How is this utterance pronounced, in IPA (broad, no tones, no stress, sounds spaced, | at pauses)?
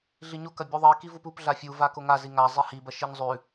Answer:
ɮ i ɲ o k ɐ bʲ u ðˤ i k i v u p u p ɮ a fʲ u v a k o ŋ a z i ŋ a zˤ i h i b ɐ ʃ i ɲ zˤ ʉ